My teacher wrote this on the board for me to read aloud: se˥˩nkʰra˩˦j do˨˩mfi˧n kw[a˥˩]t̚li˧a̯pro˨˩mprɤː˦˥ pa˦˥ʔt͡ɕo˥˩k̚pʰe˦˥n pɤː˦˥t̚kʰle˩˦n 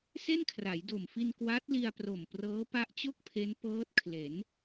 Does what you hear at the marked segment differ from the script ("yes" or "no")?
yes